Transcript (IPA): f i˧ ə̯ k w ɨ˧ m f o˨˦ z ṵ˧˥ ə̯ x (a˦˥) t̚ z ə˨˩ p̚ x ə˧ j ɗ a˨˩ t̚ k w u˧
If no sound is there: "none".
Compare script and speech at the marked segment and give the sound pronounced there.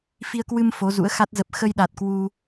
a˦˥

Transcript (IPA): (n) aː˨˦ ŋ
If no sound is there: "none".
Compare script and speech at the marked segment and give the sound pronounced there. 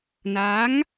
n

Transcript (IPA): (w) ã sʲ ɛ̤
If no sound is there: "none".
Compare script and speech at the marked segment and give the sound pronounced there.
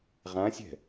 ʁ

